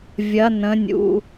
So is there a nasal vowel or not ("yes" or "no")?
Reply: yes